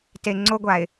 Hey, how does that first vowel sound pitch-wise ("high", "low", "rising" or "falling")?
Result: low